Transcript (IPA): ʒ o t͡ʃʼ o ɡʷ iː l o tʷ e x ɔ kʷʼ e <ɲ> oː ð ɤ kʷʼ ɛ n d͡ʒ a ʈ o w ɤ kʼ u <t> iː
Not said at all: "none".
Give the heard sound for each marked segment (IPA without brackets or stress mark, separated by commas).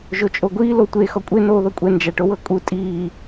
n, tʼ